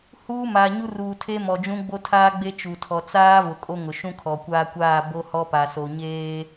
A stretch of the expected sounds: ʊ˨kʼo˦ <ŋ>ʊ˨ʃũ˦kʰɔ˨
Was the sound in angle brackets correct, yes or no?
yes